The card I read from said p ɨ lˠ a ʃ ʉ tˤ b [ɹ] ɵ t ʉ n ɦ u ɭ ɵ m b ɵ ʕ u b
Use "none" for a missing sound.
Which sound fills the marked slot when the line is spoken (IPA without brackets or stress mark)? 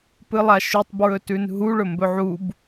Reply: ɹ